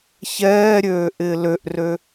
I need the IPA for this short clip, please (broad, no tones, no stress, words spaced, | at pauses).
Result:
çɛːɾʲøːʔɪː løʔrø